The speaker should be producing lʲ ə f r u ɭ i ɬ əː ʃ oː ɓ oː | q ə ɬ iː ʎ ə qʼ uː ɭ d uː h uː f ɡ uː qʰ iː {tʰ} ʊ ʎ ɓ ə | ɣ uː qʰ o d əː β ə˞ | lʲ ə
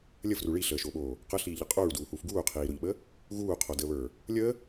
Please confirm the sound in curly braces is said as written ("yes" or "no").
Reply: no